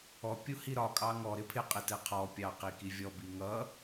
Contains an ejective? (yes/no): yes